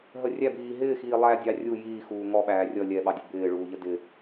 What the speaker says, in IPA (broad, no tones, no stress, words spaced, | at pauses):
ɦə rʲæbiː ɦɪːxiː lˠædʲɑ rʲu jiːxuː ŋɔɓæː rʲʌ lʲɛɓɑdʲə bɪːɭuːʎə dɪ